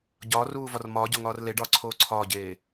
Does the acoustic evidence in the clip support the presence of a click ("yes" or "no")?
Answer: yes